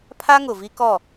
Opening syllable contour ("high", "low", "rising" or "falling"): high